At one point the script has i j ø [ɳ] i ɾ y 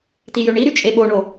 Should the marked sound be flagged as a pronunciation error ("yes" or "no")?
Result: no